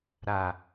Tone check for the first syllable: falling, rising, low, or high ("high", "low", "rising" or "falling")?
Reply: low